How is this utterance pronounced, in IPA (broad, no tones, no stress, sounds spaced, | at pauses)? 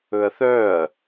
ɵ ɐ̯ θ œ ɐ̯